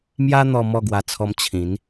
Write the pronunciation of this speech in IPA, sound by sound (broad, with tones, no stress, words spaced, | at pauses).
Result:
mja˧ n̪ɔ˧ mɔ˥˧ɡwa˧ t͡sʰɔ˧m t͡ɕʰĩ˨˦n